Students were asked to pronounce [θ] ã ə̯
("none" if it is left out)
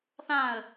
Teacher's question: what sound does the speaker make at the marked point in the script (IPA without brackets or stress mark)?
θ